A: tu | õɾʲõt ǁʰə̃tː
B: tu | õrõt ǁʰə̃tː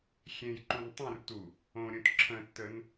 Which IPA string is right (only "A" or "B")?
A